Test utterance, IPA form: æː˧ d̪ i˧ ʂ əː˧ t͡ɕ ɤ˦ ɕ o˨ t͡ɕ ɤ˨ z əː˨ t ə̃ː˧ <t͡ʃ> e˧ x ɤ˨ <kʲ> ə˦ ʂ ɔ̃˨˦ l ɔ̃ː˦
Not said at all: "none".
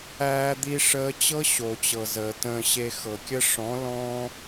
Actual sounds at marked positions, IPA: ɕ, kʲ

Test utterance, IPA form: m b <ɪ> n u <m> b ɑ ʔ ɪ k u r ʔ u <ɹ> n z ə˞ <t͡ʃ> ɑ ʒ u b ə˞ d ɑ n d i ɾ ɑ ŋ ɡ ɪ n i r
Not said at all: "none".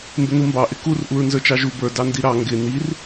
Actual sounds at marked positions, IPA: ɪ, m, ɹ, t͡ʃ

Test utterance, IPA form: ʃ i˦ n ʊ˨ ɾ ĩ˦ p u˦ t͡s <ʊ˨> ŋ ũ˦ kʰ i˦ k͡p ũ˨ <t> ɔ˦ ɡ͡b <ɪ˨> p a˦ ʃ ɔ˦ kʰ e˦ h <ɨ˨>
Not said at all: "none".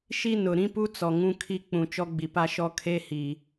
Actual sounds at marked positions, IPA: ɔ˨, t͡ʃ, i˨, i˨

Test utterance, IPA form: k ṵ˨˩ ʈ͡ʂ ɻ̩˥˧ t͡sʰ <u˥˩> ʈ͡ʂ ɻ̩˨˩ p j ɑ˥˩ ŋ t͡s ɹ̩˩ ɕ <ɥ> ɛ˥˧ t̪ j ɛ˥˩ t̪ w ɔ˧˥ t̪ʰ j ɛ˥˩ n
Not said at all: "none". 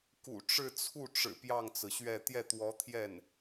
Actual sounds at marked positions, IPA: u˥˩, ɥ

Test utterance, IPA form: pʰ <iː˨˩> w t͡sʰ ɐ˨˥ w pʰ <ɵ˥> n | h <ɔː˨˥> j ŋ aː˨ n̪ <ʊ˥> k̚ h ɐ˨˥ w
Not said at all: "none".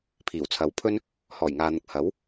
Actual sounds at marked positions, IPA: iː˨˩, ɵ˥, ɔː˨˩, ʊ˨

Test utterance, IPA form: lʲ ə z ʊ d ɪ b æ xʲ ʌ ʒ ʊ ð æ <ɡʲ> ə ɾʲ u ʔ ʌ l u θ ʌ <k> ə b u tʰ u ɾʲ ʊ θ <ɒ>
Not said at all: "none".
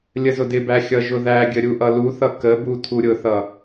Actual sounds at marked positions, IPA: ɡʲ, k, ʌ

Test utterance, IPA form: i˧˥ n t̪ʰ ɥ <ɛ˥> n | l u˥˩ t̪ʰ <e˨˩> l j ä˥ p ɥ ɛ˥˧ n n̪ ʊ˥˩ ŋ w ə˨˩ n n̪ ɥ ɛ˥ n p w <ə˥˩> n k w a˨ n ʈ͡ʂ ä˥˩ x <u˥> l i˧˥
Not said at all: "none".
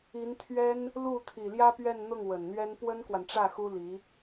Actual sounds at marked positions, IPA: ɛ˥, i˨˩, ə˥, u˥

